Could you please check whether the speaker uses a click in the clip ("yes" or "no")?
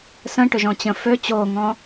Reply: no